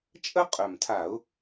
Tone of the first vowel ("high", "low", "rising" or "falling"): high